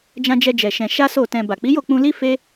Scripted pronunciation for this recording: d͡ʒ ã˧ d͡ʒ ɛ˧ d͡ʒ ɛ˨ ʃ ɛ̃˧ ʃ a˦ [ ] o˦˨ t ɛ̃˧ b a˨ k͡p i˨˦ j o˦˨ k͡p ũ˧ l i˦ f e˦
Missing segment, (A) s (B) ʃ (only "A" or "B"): A